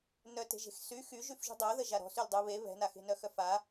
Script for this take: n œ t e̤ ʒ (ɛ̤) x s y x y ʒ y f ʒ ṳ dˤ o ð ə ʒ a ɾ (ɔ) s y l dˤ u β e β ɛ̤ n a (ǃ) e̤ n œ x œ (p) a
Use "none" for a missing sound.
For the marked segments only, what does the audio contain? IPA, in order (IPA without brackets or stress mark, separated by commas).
e̤, ɔ̤, x, f